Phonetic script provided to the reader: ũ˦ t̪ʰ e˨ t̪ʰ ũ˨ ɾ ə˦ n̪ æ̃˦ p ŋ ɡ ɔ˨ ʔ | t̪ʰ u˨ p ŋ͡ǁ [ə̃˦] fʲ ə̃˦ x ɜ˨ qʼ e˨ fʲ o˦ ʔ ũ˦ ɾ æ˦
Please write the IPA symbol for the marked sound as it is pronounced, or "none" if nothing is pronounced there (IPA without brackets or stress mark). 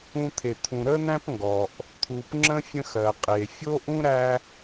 ə̃˦